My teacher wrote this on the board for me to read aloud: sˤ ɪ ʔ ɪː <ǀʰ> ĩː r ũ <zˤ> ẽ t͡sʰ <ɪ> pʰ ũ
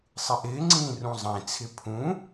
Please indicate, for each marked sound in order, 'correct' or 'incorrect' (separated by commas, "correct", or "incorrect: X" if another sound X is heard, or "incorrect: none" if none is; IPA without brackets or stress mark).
incorrect: ŋ͡ǀ, correct, correct